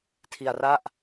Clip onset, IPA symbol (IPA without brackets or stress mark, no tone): tʰ